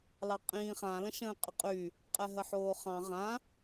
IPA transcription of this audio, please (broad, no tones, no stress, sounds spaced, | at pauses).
l ɑ qʼ ĩː χ ã l ə̃ ʃ ə̃ː qʼ ə qʼ y | qʼ ɛ ɦ ə ħ oː χ ɑ̃ ʁ ã